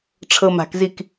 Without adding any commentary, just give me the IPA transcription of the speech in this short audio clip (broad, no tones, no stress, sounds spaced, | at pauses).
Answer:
ʈ͡ʂʰ ɤ m a̤ k z i k